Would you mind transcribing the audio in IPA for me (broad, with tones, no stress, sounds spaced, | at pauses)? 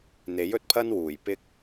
n̪ e˨˥ j ɵ˨ t̚ pʰ ɐ˥ n w uː˨˩ j p ɪ˧ k̚